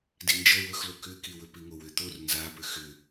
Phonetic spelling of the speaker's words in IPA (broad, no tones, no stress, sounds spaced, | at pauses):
d i n d͡ʒ ʌ w ɵ x l o k ʏ k i w ɵ p i ŋ o w ʏ t̪ o r n z a p ʏ x ʏ